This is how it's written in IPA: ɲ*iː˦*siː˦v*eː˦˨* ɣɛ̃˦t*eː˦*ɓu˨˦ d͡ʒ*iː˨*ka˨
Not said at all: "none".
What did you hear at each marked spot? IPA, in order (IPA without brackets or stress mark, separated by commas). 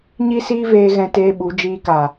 i˦, eː˧, eː˦, iː˧